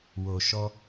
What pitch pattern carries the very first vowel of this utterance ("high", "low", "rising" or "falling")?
low